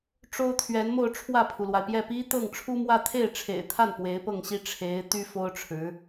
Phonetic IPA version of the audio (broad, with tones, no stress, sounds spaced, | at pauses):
ʈ͡ʂ o˥ ʊ̯ t̪ʰ ɥ ɛ˧˥ n m o˥˧ ʊ̯ ʈ͡ʂʰ w ä˥˩ pʰ u˩ l w a˩ ɪ̯ p j ɛ˥˩ p i˥ t̪ ɤ˥˩ ŋ ʈ͡ʂʰ u˥ m w ä˥˧ t̪ʰ e˥˩ ɪ̯ ʈ͡ʂʰ ḛ˨˩ ɪ̯ t̪ʰ a˥˩ n p w e˧˥ ɪ̯ p ɤ˥˩ ŋ ɕ i˥ ʈ͡ʂʰ e˧˥ ɪ̯ t̪ y˥ f o˥ ʊ̯ ʈ͡ʂʰ ɻ̩˧˥